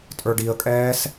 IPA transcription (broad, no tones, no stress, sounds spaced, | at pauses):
tʼ ə˞ ɖ i ə̯ kʼ ɛː s